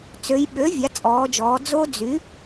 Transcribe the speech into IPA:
t͡s ø˩˧ j ɓ ø˩˥ vʲ a˩˥ t͡sʼ ɔː˩˧ d͡ʒ ɔː˩˧ d͡z o˦˥ d͡z y˩˥

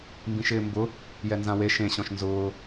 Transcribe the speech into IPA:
m b ĩ ʃ ɪː m b ʊ | j ɛ n z ã w e ʃ ẽ ɕ ɔ̃ ʃ n z ʊː

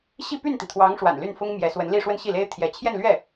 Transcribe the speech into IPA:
ɕ i˥˧ p y˥˩ n t̪ i˩ t̪ʰ w ɑ˧˥ ŋ ʂ w a̰˨˩ n l y˥˩ n f ʊ˥ ŋ m j ɛ˧˥ s w ə˧˥ n l i˥˧ ʂ w ə˥˧ n ɕ i˥˩ l e˥ ɪ̯ t̪ʰ j ɛ˧˥ t͡ɕʰ j ɛ˥˧ n l ɥ ɛ˥˩

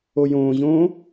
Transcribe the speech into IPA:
o j õː ʑ õː

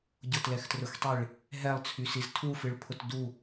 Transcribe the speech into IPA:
ɟ ʊ t l ɛ x t r ʊ x tˤ i ɭ | ɦ ɛ lˠ t͡sʰ y s i z tʰ u f ɨ ɭ pʰ ʊ t d u

